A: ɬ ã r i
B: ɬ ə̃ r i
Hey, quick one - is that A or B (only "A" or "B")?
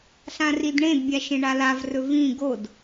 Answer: A